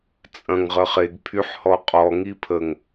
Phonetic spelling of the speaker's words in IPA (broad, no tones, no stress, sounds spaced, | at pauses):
t͡sʼ ɐ̃ ŋ ʁ ə χ e ɡ pʰ y ħ h ɔ qʼ ɔ ŋ i pʰ ə ŋ